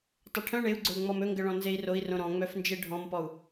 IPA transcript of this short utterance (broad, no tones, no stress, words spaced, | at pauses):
tˤɵʈʰœ̃ ɳeu̯ɡ͡ǀɵu̯ ŋ͡mɔmɵŋɡə ɭɔ̃nzei̯roi̯ rõɾɔ̃ ŋ͡mœfnd͡ʒeɖʱɔ̃mpɔu̯